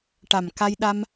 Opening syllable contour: low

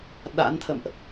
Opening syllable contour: rising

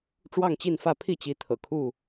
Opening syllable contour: falling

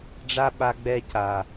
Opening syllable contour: high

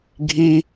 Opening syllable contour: high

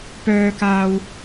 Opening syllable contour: low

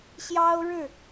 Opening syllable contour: high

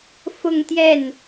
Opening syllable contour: falling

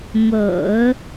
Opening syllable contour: low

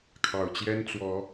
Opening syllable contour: low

